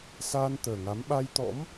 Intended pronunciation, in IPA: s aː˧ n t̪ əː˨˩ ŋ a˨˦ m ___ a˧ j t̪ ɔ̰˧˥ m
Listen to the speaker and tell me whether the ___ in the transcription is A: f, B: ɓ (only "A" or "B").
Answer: B